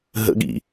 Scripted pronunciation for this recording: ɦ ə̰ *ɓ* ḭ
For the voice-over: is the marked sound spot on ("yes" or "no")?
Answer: no